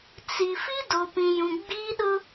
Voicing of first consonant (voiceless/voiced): voiceless